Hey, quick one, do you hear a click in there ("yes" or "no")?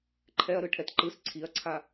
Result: yes